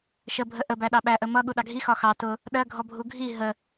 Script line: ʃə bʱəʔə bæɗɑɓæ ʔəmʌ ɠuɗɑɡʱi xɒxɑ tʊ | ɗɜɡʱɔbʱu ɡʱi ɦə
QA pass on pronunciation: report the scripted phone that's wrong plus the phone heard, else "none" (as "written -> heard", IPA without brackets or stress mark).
none